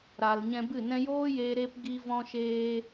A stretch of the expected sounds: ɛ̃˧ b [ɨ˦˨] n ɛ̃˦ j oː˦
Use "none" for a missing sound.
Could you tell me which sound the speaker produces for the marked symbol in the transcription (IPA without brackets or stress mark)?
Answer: ɨ˦˨